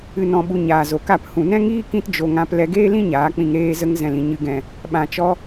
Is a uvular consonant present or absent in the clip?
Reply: absent